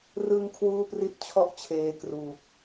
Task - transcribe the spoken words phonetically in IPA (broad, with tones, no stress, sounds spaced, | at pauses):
r ɯ˧ ŋ kʰ w uː˥˩ p r i˥˩ t̚ t͡ɕʰ ɔ˥˩ ʔ t͡ɕʰ eː˧ k r uː˨˩ k̚